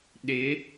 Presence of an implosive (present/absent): present